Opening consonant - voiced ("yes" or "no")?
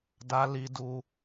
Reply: yes